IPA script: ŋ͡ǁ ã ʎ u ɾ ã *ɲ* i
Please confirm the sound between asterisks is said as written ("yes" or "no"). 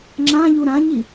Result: yes